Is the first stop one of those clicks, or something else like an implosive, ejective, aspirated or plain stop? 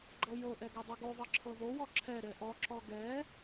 click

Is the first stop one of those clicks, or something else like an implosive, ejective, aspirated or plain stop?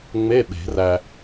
implosive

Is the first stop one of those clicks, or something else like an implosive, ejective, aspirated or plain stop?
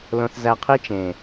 aspirated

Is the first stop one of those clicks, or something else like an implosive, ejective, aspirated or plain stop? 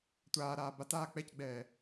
plain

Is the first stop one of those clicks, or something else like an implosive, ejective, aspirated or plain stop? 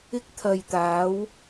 plain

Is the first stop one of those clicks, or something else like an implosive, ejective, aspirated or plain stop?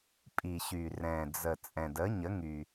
ejective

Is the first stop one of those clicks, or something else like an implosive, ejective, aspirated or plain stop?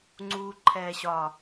click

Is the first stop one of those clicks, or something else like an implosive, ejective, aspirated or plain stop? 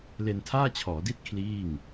aspirated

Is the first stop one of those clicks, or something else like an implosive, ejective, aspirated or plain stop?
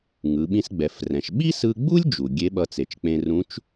implosive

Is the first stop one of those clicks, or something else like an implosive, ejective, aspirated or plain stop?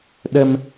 implosive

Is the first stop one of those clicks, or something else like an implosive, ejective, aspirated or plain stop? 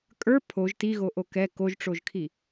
ejective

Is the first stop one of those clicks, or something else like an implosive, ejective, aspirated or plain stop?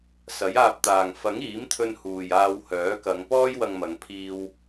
plain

